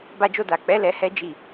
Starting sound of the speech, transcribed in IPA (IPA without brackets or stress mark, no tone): b